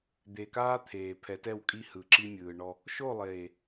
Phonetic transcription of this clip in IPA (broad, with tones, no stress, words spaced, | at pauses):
d̪e˨kaː˦t̪ʰeː˨ pʰɛ˨˦tɛ˦˨wkʼi˦hɯː˨ ǁi˦mʲɯː˨ ɳɔ˦ | ʃo˦˨lˠeː˨